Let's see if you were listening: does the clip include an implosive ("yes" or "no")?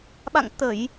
yes